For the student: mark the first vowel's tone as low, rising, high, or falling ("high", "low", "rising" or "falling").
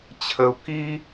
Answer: high